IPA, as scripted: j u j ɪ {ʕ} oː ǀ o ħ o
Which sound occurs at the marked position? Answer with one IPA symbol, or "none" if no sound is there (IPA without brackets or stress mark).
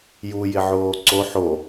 ʕ